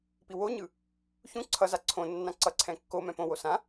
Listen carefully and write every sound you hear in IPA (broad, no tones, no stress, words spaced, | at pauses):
piwoɲɯ | çũ ǀʰʌza ǀʰõnːã ǀʌǀʰɛ̃ kːo mɛ̃põwo sã